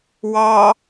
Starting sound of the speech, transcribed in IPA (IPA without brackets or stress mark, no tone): w